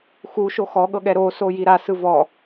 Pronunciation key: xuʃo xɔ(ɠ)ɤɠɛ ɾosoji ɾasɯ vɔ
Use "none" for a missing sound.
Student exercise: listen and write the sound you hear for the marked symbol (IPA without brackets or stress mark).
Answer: ɠ